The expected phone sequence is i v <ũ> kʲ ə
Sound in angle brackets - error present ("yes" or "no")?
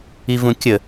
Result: no